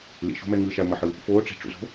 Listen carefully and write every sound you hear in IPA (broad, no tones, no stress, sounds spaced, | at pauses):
l ḭ ʃ o̤ m ɛ ŋ ɯ ʃ a ʊ̯ m ʌ ħ ɯ | f oː ʈ͡ʂ i̤ ʈ͡ʂ ṵ z o̤